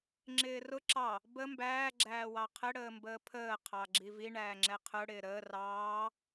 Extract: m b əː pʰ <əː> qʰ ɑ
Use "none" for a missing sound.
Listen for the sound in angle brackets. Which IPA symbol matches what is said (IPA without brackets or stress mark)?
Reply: əː